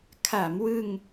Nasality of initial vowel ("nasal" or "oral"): oral